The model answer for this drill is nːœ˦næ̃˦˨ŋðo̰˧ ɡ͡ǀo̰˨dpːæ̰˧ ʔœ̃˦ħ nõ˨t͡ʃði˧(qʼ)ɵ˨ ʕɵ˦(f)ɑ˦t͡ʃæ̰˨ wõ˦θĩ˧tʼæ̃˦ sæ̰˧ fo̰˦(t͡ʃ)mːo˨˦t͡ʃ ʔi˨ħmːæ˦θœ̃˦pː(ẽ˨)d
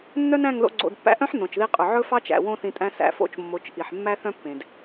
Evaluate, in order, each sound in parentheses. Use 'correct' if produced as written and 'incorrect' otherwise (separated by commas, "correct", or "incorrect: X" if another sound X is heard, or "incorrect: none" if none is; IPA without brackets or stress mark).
correct, correct, correct, correct